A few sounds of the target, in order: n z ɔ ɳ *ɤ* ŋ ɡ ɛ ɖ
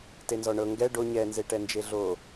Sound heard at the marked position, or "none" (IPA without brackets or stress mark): ɤ